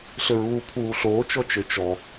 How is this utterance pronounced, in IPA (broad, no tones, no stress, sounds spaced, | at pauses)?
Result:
ɬ ɘ ɹ uː pʰ uː ɬ oː t͡ʃ ɔ t͡ʃ ɘ t͡ʃ ɔ